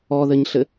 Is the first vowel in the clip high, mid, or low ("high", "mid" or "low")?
mid